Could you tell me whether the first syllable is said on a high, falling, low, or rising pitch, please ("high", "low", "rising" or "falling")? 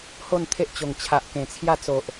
falling